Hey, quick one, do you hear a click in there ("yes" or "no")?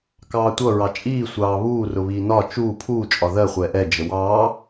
no